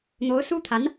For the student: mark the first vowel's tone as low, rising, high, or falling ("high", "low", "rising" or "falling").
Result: rising